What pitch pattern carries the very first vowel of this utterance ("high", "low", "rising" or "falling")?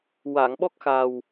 low